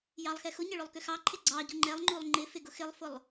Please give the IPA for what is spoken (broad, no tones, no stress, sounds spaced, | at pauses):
j ɑ lˠ x ɛ x ʊ ɲ ɪ ɭ ʊ lˠ k ʏ x ɑ ǃʰ ɪ ɡ͡ǀ ɑ ɟ u ŋ͡ǃ ɛ lˠ ŋ͡ǃ u lˠ ŋ͡ǃ ɪ f ɪ ɡ ʊ x ɪ lˠ f ʊ lˠ